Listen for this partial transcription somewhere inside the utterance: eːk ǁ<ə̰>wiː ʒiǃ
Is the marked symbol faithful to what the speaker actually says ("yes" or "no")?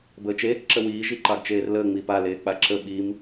no